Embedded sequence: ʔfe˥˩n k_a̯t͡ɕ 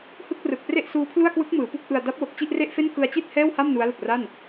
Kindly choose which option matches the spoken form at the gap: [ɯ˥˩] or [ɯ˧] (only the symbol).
ɯ˧